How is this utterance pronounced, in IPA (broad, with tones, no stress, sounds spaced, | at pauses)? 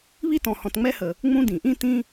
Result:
β i˥ t ɔ̃˨ h ɔ̃˨ t ŋ͡m ɛ˥ h ə˩ | ŋ͡m ũ˦ d ĩ˩ ʔ ĩ˥ t ĩ˥